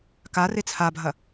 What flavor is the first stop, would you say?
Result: plain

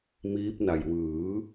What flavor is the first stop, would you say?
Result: plain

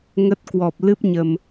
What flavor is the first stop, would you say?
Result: plain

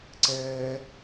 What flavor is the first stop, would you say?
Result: click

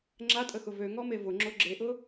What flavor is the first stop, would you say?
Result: click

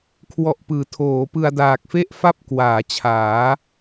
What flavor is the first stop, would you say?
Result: aspirated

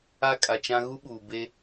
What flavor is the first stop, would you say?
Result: ejective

